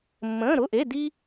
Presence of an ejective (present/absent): absent